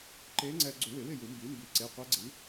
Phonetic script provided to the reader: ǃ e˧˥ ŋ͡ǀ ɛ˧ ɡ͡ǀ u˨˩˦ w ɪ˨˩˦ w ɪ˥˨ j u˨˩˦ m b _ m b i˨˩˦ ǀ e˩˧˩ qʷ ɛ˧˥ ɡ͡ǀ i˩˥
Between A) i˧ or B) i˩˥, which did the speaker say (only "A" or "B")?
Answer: B